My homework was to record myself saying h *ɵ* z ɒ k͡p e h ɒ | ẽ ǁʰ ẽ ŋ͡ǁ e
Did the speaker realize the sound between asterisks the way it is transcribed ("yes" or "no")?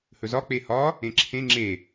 yes